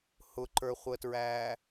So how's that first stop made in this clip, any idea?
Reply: click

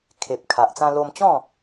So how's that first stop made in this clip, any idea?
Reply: aspirated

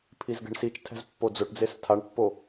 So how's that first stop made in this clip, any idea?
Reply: aspirated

